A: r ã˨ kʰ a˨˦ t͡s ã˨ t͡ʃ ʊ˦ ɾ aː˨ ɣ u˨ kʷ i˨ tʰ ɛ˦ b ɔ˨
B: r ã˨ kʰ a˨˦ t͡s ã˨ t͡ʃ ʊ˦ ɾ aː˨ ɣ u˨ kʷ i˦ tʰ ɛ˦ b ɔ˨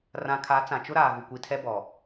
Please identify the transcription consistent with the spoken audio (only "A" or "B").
A